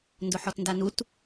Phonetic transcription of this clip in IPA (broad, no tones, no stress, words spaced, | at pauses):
ndʊħɔtndanut